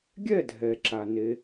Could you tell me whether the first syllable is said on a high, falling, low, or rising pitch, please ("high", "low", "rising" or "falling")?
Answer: falling